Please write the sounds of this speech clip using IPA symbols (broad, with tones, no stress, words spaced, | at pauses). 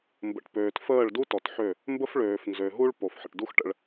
mbə̰˨ʈpøː˨tfəː˦˨ɭ du˦tɔ˨tħø˦˨ | mbə˦f ɭøː˨fnzø˨ɦu˦ɭ po˨fħə̰˨ʈdu˦x ʈə̰˦ɭ